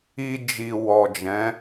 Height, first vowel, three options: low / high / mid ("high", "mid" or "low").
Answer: high